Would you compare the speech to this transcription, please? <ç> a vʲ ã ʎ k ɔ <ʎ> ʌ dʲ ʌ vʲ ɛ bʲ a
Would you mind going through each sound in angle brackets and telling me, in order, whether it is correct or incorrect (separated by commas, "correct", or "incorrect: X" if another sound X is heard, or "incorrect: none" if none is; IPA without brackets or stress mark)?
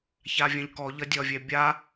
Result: correct, correct